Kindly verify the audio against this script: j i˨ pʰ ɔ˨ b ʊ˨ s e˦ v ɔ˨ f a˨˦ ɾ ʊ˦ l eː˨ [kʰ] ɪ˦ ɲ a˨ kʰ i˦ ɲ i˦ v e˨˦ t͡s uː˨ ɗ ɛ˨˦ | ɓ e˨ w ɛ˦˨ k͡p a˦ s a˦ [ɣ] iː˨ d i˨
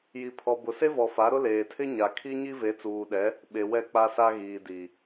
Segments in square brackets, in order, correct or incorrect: incorrect, correct

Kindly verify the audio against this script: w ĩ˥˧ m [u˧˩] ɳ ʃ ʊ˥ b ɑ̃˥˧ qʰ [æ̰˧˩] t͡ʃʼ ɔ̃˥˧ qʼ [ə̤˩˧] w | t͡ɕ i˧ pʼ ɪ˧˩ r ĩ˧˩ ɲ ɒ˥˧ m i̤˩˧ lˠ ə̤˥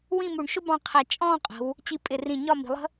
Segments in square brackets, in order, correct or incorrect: correct, incorrect, correct

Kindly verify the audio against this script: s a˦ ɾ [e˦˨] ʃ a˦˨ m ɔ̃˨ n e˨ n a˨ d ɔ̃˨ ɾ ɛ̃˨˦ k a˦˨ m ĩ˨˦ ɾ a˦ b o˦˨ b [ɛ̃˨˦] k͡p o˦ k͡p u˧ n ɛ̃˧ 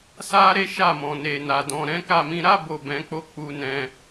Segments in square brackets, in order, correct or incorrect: incorrect, correct

